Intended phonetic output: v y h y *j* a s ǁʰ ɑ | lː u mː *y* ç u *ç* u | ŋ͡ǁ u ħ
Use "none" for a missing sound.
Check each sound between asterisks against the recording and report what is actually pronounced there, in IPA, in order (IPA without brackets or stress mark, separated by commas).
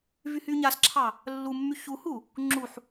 ɲ, y, h